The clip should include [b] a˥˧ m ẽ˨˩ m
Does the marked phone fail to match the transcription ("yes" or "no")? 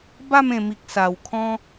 no